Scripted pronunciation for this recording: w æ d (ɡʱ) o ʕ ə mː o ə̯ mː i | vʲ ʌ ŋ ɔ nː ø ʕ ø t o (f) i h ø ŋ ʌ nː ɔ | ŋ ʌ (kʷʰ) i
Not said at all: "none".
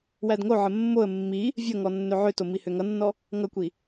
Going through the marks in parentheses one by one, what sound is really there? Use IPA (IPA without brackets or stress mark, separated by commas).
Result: ŋ, m, kʷ